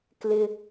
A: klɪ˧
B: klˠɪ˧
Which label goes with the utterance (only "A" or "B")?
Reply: A